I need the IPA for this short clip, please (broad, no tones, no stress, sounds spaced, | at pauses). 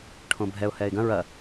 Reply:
ʈʰ õ bʱ ɛ ʊ̯ h ɛː ɪ̯ ɡ ɐ̃ ɹ ɐ